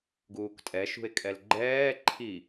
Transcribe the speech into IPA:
ɡ uː k tʼ ɛ ʃ ṳ e̯ kʼ ɛ l ɡ͡ǃ ɛː ǃʰ i

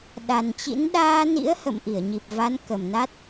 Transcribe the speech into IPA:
ɗ a˨˩ n t͡ɕ ḭ˧˥ n ɗ aː˧ n ḭ˧˥ ə̯ h ə̰˧˨ m ʔ i˧˩ ə̯ ɲ i˨˩ p̚ v a˨˦ n k ə˨˩ m n a˦˥ t̚

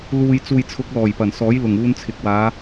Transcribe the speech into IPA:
l uː˨ j t͡s uː˨ j t͡sʰ ʊ˨˥ k̚ l ɔː˨˩ j p ɐ˨˩ n s ɔː˨˥ j l ʊ˨˩ ŋ uː˧ n t͡sʰ ɪ˨ k̚ w aː˨˧

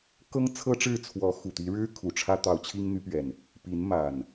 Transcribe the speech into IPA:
k ɤ˦ ŋ t͡sʰ ɤ˦ ʈ͡ʂ ɻ̩˥˨ t͡sʰ w ɔ˨˦ x u˨˩ t̪ i˨˦ ɻ ɻ̩˦ kʰ u˨˩ ʈ͡ʂʰ ä˦ t̪ ɑ˨˦ ʊ̯ t͡ɕʰ i˦ ŋ n̪ y˨˦ p ɥ ɛ˨˩ n | p i˨˦ n m a˨˩ n

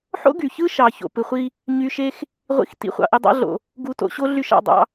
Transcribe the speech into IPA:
ħ o̰˦ ɡ y˨ ç ɯ˦ ʃ ɑ˨ ç o̰˨ p ɯ˨ χʷ i˦ | ɲ y˧ ʃ e˦ x | ʁʷ ḭ˧ x t ḭ˨ χʷ ɑ̰˨ ʔ e˧ dˤ ɑ̰˦ ɮ o̰˨ | ɡ u˧ t o̰˧ ɕ o˦ ɮ y˦ ʃ ɑ̰˦˨ dˤ ɑ̰˦

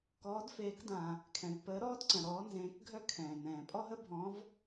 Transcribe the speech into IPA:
k ɔː˨˦ d f eː˨˦ k d ã˩ | kʰ ɛ̃˩ v p əː˨˦ ɾ ɔː˥ d ǀ ə̃˩ ɾ ɔː˨˦ n z ẽː˨˦ k ɡʱ œ˥ kʰ ɛ̃ː˩ n ɛ̃ː˩ pʼ ɔ˥ ɦ ə˥ bʱ ɔ̃˨˦ v

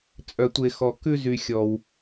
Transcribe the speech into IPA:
t͡sʼ œ˨ tʷ e˨ x ɔ˨ k ʉ˦ z y˨ xʲ ɔ˩ w

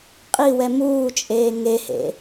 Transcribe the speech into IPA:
qʼ i w ɛ m uː t͡ʃʼ eː ŋ e h ḛ

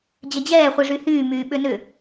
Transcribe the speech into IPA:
d͡ʑ ɐ d͡ʑ ɛː χʷ i ʐ y h yː m yː ɓ ʏ n ʏ

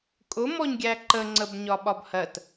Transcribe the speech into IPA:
kʼ ʊ m ɔ ɲ ɡʲ æ ǃ ə ŋ͡ǀ ə b ɲ ɒ ɓ ɒ b h ɜ t

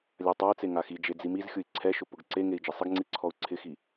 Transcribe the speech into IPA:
lʲ a tˤ a i̯ t͡s e ŋ a x i d͡ʒ e d͡z i m i z xʲ ʊ i̯ ǀʰ ɛ ʃ ʊ p ʊ ɡ ǀ e ŋ e i̯ d͡ʒ ɪ sˤ ɪ ɡ ŋ͡ǀ i ǀʰ ɔ u̯ ǀʰ ɪ x i

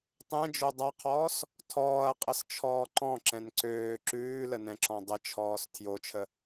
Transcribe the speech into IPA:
tˤ ɛ̃ d͡ʒ o dˤ a qʰ ɔː s | tʰ ɔː ɐ̯ qʼ ə s t͡ʃʰ ɔː ǃ ɔ̃ ǁ ɛ̃ n ǀ øː ǁ ʉː l ə n ɛ̃ ǁ ɔ̃ dˤ ə t͡ʃʰ ɔː s tʰ j o t͡ʃʰ ə

